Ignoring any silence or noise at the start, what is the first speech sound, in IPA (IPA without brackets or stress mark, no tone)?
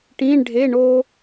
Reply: ʈ